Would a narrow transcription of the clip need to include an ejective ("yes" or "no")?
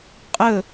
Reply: yes